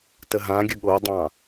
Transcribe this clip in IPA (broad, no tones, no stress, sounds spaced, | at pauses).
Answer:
t ə ɦ ã ɡʲ ə ɠ o dˤ ɑ̃